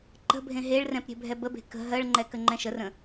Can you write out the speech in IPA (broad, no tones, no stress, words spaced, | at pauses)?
ǃə̤bʱẽ ɦeɭrɛ̃p ɾʲe̤bʱɛbəbe̤ kə̤ ɦɜɭŋ͡ǃɛ kəŋ͡ǃɛ̃ʃərə̃